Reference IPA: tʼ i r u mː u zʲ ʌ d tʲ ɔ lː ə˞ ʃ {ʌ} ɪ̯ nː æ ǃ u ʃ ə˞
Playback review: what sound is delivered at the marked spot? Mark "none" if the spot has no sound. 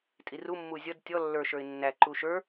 ə˞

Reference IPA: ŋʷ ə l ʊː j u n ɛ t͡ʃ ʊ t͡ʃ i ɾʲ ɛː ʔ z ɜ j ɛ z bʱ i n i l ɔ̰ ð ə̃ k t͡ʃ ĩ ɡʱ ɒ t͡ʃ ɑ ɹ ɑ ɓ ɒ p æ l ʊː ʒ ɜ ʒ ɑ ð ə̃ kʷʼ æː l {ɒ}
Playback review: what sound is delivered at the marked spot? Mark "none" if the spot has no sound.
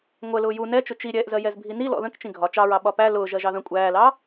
ɑ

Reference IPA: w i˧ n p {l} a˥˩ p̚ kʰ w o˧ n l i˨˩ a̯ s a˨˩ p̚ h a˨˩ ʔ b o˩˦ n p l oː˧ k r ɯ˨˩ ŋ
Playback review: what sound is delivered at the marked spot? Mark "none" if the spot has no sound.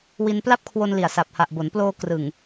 l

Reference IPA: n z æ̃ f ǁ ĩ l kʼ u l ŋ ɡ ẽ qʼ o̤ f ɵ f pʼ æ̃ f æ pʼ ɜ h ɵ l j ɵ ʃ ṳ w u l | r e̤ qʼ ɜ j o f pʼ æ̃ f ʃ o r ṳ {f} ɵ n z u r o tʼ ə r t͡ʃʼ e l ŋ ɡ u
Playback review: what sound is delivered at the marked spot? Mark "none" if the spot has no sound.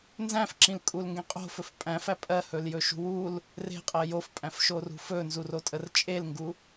f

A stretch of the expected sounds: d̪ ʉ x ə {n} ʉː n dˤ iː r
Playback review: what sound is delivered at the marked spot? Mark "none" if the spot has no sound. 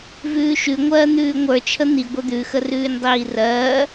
r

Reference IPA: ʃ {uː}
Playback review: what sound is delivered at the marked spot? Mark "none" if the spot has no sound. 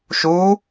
uː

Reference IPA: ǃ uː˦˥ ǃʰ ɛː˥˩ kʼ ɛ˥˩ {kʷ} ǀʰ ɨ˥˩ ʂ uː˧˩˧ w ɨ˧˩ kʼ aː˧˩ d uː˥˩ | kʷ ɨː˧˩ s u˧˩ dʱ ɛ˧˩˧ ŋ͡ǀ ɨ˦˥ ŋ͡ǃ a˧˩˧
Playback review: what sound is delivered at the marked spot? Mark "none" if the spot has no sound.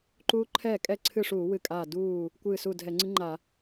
none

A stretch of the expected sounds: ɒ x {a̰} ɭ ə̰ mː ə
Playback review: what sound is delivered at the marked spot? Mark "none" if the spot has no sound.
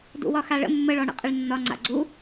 a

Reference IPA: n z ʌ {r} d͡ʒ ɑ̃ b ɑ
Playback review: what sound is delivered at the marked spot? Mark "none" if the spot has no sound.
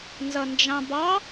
n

